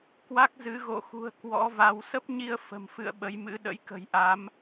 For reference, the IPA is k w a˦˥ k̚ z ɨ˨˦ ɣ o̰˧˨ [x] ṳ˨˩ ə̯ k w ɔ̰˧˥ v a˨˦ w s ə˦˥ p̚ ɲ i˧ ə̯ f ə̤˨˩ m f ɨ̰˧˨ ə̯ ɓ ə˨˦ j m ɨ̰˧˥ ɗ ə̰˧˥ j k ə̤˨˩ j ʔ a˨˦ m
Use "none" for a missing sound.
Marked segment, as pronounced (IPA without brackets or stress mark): x